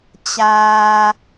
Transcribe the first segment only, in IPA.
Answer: t͡ɕ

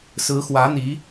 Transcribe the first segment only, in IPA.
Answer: s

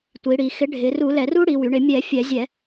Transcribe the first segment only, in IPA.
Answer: tʷ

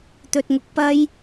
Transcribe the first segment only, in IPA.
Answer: t̪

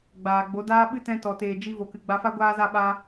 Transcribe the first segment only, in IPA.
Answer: ɡ͡b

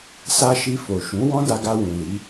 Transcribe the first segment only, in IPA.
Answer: s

